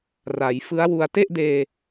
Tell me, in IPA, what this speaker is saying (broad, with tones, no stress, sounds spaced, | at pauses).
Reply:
r a˩˦ j f ɯ˦˥ a̯ w u˧ a̯ t e˥˩ ʔ d eː˧